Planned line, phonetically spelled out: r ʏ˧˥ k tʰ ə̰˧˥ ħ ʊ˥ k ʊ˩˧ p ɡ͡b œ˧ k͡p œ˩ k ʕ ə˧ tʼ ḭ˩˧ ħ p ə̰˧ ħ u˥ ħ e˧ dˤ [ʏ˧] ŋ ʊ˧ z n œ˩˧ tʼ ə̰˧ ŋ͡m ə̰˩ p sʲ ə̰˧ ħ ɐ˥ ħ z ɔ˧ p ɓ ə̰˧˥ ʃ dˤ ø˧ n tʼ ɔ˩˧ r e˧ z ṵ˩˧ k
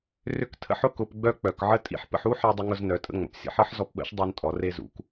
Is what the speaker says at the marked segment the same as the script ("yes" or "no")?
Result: yes